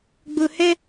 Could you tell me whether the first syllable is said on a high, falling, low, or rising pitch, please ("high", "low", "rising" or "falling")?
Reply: low